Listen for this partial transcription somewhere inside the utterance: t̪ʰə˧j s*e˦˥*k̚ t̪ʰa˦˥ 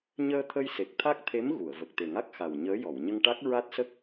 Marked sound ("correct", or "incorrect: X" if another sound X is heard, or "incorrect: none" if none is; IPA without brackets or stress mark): incorrect: e˨˩